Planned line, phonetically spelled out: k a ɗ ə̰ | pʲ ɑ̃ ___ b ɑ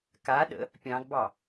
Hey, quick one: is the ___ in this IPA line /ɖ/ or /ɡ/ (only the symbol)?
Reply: ɡ